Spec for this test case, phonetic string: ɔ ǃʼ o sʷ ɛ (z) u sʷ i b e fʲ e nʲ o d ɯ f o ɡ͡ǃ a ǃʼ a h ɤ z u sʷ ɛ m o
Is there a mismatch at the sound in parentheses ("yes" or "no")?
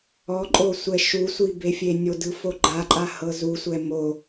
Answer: yes